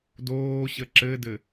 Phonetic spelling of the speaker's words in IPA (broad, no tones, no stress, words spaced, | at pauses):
doːɕə ǁɘdɘ